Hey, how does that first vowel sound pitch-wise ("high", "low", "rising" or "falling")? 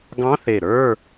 rising